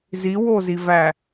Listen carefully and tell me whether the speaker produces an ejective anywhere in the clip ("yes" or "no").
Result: no